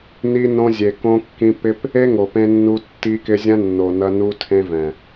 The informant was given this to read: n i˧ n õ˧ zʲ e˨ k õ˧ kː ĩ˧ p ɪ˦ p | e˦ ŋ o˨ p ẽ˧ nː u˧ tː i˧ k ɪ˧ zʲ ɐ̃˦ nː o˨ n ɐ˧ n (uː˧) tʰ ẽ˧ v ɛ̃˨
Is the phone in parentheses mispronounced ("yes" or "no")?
yes